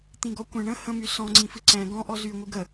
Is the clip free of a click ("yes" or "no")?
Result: no